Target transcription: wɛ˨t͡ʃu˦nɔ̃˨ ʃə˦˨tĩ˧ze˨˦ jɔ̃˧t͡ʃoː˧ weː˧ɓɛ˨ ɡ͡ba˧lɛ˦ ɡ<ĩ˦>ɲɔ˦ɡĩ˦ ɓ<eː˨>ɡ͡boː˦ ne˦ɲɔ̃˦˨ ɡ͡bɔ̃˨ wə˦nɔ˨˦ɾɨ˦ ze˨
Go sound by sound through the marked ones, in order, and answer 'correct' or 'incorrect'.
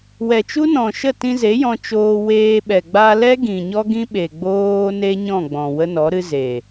incorrect: ĩ˨, incorrect: e˨

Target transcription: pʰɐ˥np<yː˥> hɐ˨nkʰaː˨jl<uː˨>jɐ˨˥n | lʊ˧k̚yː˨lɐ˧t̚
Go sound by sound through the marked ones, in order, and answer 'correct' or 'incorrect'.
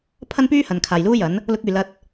correct, incorrect: uː˥

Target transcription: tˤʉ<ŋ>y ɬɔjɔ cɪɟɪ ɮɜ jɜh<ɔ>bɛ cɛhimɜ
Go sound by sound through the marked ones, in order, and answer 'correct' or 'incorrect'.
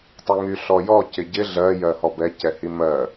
correct, correct

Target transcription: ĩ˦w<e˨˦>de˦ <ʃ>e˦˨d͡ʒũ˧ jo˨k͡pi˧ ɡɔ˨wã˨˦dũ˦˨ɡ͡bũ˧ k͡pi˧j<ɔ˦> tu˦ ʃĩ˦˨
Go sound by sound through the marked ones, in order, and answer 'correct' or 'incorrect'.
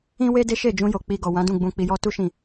incorrect: e˦, correct, correct

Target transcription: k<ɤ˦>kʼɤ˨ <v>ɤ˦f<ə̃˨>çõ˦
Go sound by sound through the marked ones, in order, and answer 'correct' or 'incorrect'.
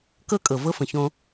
correct, correct, correct

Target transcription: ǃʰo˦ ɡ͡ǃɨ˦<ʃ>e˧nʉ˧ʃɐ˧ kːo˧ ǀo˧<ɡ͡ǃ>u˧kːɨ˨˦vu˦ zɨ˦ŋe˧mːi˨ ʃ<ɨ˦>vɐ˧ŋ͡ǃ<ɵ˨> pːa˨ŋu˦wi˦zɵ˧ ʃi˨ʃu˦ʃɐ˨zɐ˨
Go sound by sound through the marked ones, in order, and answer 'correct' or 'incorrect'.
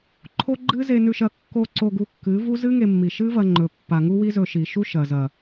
incorrect: z, incorrect: ɡ, correct, correct

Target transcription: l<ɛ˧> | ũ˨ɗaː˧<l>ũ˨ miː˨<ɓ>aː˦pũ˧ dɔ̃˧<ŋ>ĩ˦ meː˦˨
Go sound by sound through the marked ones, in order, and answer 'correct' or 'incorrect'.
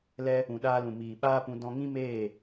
correct, correct, correct, correct

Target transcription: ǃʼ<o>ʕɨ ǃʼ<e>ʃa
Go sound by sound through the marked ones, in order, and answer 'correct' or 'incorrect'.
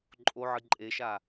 correct, correct

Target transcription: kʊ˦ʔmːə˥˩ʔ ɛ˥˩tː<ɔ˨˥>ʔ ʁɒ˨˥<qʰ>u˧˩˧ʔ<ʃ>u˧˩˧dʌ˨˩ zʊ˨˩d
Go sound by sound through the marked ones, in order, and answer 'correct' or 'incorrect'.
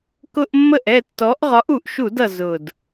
correct, incorrect: ʔ, correct

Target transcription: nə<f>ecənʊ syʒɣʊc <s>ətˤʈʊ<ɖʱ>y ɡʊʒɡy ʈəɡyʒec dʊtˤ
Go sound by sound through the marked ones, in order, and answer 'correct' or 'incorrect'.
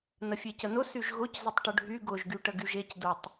incorrect: fʲ, incorrect: z, correct

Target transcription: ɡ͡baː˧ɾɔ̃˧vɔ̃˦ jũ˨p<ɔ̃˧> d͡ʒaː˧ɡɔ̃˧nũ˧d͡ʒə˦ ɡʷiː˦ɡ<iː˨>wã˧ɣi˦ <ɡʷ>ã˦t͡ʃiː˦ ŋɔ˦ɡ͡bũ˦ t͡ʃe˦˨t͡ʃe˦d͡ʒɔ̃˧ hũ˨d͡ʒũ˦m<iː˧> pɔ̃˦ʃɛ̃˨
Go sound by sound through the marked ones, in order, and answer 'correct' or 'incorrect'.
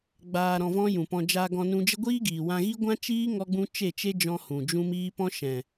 correct, correct, correct, incorrect: iː˦

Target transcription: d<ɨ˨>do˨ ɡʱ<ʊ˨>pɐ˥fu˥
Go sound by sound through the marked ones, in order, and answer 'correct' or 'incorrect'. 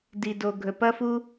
incorrect: i˨, incorrect: ɵ˨

